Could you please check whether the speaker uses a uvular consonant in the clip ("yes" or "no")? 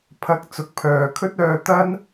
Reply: no